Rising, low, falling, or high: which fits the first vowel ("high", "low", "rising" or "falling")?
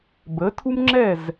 rising